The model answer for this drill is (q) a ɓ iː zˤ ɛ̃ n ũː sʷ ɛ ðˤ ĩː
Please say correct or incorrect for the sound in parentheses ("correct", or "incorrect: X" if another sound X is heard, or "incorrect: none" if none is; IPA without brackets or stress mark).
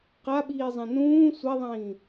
correct